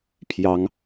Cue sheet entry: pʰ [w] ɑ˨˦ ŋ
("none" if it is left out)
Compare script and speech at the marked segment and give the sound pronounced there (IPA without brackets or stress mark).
j